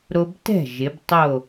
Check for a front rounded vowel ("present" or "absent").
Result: absent